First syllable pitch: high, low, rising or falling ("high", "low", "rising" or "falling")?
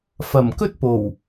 low